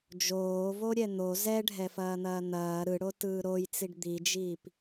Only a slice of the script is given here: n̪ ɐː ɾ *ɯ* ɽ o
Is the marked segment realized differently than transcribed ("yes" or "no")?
no